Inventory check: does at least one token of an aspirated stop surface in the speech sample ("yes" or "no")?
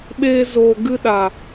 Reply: no